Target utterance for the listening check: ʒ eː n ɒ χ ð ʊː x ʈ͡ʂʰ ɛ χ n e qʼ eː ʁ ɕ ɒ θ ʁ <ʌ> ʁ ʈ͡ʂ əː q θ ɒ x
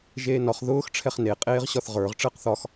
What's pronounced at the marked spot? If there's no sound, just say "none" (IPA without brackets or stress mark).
ə˞